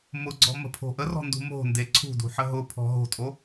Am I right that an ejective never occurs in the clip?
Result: no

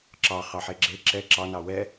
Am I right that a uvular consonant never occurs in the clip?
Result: no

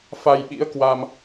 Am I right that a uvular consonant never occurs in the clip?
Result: yes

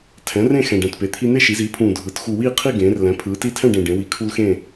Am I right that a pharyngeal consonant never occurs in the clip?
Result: yes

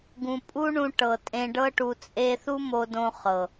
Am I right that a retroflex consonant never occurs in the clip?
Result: no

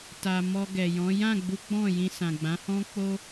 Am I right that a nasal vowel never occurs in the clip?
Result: no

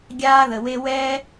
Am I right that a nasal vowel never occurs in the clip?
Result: yes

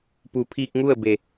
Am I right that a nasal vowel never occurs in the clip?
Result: yes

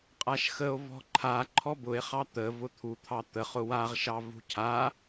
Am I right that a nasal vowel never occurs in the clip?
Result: yes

